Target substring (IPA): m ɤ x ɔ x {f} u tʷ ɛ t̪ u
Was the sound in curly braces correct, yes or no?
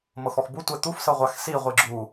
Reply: no